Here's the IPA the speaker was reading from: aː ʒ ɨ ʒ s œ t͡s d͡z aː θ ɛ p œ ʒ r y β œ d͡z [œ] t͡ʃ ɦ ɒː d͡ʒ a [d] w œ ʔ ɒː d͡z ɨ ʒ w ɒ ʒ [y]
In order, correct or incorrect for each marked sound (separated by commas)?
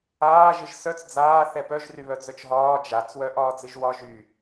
correct, incorrect, correct